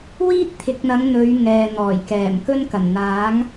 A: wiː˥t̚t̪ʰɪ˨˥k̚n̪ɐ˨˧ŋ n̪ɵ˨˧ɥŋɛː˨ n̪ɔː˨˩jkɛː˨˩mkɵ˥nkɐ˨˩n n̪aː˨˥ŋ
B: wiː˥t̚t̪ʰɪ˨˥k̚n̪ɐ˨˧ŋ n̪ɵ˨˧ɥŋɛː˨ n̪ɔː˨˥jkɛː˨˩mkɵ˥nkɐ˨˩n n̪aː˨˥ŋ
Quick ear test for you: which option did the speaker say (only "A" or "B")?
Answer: A